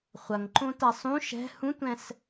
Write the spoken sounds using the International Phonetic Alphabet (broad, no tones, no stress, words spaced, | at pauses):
χʷɐŋǃõ tasˤũ ʃɛ̤ hũtʷɛ̃s